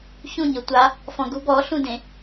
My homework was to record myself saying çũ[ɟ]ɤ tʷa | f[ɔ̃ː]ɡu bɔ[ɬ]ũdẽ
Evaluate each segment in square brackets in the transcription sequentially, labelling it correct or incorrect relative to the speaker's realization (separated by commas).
incorrect, incorrect, correct